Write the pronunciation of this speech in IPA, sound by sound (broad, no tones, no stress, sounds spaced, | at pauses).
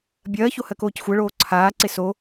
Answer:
bʲ ɜː ç o h ɜ k oː c xʷ ɜ ɭ oː ǀʰ aː ǀ e s o